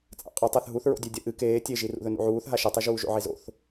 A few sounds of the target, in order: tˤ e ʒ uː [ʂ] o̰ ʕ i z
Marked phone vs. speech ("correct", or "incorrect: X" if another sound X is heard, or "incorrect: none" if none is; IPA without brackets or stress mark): incorrect: ʒ